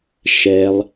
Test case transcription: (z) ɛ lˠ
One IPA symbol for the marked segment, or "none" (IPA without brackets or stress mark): ʃ